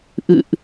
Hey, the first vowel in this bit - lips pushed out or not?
no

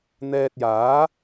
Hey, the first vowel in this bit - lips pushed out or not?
no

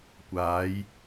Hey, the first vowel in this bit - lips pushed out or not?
no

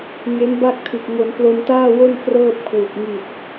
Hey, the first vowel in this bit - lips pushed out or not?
no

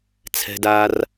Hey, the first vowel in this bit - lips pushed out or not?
no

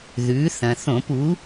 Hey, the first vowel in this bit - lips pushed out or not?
yes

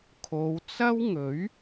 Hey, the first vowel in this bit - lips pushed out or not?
yes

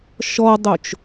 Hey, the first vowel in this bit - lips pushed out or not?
yes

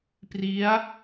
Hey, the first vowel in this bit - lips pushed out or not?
no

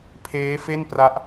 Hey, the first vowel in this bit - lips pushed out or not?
no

